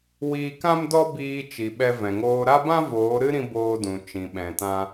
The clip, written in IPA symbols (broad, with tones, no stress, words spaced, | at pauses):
wiː˧kã˦mdɔ˦ biː˧t͡ʃi˨ ɓɛ˧vɛ̃˨ŋoː˧ ɾa˦bã˦ voː˨˦ ɾɨ˦ɾĩ˧ boː˧dũ˨ t͡ʃĩ˨ɓɛ̃˨tã˧